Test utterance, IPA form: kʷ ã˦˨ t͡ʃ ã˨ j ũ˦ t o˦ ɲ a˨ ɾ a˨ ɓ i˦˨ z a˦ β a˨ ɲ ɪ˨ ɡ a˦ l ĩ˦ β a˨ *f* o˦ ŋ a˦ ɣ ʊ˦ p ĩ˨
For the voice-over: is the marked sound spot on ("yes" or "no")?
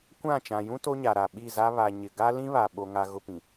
no